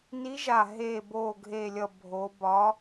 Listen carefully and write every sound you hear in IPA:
ni˨˦ʒa˨˩ ɦeː˨˩bo˨˩ɡʱe˨˩lʲʌ˨˩ bʱo˨˦ bɒ˨˦

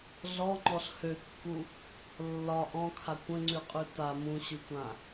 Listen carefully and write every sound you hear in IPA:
ɮɔŋ͡ǃɔɬ høkːu | lːɒ ʔɔ̃kʰa kʷə̃ŋ͡ǀʉqʼʉ ta mũɕʉkʷã

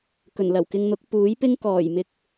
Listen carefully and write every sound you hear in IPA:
kɵ˨˩nlɐ˨˩wkɪ˧ŋn̪ʊ˨˥k̚ puː˨˥jpɪ˥ŋ kɔː˨˩jmɪ˧k̚

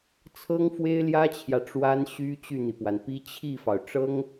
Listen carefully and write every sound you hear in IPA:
t͡sʰɤ˥ŋfwe˥ɪ̯ljä˥t͡ɕʰjä˨ ʈ͡ʂwa˥nɕy˥ t͡ɕy˥˩n̪i˩pwa˩npi˥ t͡ɕʰi˥˩fɑ˩ʊ̯ ʈ͡ʂɤ˥ŋ

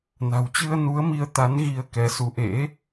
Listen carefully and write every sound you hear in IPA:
na̤˨˩wt͡ɕɨ˧ə̯nu˨˦ə̯mi˨˦ə̯ t̪a˨˦n ɣi˧ə̯kɛ˨˦ su˨˦ʔḛ˧˥

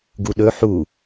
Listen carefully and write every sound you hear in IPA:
ɡuɗɵ ħu

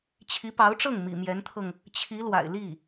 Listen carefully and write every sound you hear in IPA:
t͡ɕʰi˧˥pɑ˧˥ʊ̯ʈ͡ʂɤ˥˩ŋ mḭ˨˩mjɛ˧˥nt̪ʰɤ˧ŋ | t͡ɕʰi˧˥lwa̰˨˩ɪ̯li˥˩

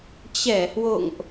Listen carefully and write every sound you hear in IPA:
t͡ɕɛ˧˩hwo̰˧˨ŋʔ

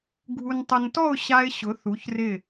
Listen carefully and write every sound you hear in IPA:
ɡʱu˧ntˤʊ˧n tɔ˥˧ʊ̯ɕa˧ɪ̯ ɕʊ˩˧θu˩˧çrɪ˧˩

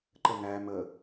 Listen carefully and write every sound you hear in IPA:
ǃəŋæ mə

